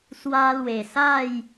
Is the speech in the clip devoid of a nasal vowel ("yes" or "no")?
yes